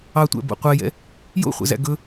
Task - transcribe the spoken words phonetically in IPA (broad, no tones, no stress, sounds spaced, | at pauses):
ɑ tʷ æ̰ b o̰ qʷ ɛ j ɛ̰ | j o̰ χʷ ɛ̰ z æ̰ ɡ ɵ